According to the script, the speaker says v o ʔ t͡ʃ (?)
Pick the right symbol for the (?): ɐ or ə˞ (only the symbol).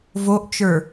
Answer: ə˞